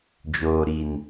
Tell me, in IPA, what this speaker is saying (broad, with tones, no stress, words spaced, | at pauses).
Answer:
d͡ʒoː˨ɾi˨n